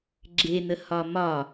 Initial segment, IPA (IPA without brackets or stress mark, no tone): ɡ͡ǁ